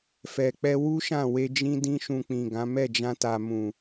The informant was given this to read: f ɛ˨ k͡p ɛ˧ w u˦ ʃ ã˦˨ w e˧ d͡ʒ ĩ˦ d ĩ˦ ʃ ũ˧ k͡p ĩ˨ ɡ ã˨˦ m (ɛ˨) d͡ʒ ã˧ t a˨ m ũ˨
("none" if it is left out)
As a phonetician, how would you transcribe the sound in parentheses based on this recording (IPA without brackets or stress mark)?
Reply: ɛ˦˨